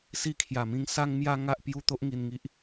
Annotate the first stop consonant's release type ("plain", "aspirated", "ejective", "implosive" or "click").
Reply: aspirated